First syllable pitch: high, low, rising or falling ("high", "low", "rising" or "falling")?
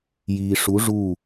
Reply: low